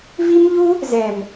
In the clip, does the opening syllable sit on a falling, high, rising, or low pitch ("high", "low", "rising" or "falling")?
high